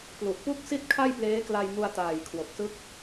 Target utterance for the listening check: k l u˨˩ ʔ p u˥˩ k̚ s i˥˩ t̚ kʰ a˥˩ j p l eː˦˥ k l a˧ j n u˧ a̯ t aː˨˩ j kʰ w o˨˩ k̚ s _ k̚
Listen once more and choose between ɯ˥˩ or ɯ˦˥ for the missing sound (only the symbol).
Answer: ɯ˦˥